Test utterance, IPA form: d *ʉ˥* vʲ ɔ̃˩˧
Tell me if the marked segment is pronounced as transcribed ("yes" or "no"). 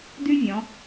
yes